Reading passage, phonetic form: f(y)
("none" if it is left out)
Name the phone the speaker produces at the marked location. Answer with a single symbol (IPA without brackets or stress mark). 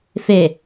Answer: e